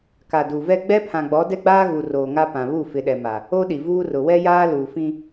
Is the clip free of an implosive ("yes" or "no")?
no